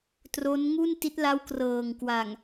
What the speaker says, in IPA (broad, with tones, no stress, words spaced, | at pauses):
tro˦˥nŋu˥˩n ti˦˥t̚la˦˥w krɤː˨˩ŋ kwa˨˩ŋ